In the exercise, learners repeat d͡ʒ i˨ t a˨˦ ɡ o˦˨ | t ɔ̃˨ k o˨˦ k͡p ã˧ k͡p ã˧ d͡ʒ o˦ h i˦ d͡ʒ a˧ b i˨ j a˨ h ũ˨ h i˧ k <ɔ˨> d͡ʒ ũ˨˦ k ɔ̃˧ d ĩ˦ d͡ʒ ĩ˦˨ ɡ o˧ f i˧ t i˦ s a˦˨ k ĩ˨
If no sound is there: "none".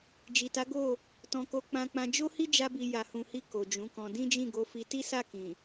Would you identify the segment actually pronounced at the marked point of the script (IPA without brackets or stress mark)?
o˨